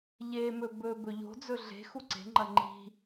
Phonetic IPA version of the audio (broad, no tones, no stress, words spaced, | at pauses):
ʎemɵ bɵ bɵʎo̤d͡zɵ ɮe̤ xuǀe̤ŋ͡ǃɐ ŋ͡ǃi̤